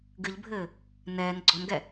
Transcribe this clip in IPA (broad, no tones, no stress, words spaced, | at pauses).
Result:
ɡɨʎbʱɘː | nɛːn ɡ͡ǀɔnɡɛ